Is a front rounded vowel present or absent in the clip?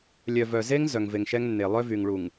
present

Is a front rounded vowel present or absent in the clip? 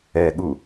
absent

